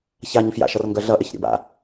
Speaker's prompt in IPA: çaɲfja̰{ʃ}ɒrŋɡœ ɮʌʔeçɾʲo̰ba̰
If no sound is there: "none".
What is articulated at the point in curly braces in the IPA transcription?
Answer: ʃ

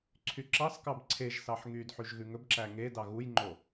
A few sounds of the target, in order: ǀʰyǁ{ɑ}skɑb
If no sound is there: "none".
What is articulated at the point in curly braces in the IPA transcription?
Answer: ɑ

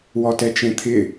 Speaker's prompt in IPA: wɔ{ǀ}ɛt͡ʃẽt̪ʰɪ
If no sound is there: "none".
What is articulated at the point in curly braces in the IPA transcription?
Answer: t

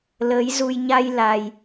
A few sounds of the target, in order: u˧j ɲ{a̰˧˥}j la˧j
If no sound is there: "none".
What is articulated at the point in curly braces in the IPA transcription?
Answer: a˧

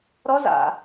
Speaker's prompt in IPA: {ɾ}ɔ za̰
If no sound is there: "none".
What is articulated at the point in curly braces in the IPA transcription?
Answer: ɾ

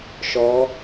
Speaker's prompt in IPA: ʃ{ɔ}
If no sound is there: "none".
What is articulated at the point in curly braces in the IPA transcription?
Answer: ɔ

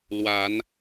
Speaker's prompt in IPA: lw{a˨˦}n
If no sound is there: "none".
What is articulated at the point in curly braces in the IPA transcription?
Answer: a˨˦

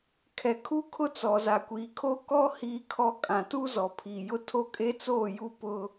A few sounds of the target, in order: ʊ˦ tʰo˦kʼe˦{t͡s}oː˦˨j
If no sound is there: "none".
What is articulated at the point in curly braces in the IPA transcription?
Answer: t͡s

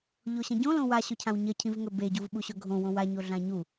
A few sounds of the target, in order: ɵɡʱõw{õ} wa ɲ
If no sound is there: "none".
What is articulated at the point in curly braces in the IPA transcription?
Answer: õ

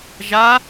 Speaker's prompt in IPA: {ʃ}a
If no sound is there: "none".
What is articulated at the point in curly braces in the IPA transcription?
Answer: ʒ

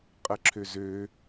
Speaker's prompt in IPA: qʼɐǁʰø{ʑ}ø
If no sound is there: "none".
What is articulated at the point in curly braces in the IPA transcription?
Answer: z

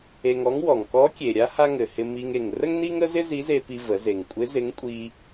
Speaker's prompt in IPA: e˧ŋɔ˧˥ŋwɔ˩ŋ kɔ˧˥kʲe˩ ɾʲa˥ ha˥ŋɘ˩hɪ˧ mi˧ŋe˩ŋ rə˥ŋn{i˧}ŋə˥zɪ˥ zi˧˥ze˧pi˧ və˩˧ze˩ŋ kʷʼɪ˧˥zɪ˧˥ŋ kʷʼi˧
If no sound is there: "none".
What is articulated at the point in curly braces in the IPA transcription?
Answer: i˥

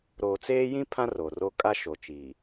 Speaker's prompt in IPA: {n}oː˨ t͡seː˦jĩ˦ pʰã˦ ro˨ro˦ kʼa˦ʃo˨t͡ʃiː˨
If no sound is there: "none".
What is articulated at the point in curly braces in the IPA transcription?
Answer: ɾ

